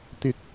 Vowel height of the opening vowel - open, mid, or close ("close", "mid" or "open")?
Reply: close